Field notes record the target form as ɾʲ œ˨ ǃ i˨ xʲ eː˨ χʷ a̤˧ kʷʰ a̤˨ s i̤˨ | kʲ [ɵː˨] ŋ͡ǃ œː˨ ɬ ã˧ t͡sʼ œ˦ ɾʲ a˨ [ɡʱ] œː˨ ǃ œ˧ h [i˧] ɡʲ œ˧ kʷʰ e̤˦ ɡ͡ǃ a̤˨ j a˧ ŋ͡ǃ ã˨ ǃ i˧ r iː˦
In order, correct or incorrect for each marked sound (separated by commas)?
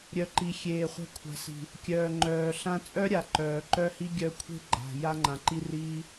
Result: incorrect, incorrect, correct